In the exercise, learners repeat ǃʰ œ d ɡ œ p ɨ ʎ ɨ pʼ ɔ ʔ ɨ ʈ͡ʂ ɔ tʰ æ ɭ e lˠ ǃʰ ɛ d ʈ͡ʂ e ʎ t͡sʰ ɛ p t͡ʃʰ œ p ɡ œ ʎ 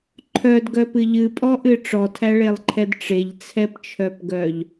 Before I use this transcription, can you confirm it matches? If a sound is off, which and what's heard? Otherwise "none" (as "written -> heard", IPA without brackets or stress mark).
none